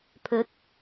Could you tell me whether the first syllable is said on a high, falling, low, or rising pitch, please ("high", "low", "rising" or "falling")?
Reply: rising